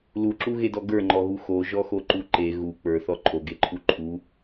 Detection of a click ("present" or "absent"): present